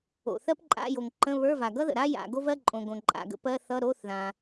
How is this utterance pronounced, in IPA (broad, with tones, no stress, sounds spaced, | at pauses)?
o̰˨ θ ɜ˥ p ǃʼ a̰˧˥˧ j o˨ ŋ ǃ ə̃˧˥˧ β ə˞˧˥˧ v a˨ ɡ ʌ˥ ð ə̰˨ ɾ a˥ j a̰˨ ɡ o˥ v ɜ˧˥˧ ǃʼ õ˨ ɡ õ˨ ǃʼ a̰˨ ɡ ə̰˥ p ɜ˧˥˧ θ ʌ˧˥˧ ɾ o˧˥˧ θ ð ã˨